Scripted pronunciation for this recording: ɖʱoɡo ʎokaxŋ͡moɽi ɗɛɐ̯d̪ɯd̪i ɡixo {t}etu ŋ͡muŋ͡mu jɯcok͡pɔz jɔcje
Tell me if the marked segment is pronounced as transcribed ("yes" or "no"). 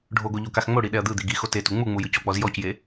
yes